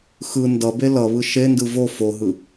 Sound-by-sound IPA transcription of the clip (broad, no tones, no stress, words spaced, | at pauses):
xɯ ndʌbe lʌβɯ ʃendɯ vo foɦɯ